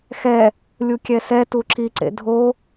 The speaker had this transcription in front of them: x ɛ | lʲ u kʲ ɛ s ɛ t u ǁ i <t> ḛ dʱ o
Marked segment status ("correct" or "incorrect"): incorrect